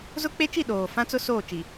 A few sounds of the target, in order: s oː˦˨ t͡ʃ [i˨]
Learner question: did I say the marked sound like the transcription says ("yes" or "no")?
yes